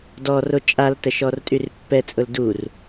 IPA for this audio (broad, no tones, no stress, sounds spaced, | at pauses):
d ɔ r o t͡ʃʼ a l t ə ʃ ɔ r tʼ y r pː ɛ t͡sʼ ʊ l d u r